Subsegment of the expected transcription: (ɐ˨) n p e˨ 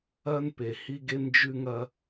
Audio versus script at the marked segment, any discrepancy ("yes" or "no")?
yes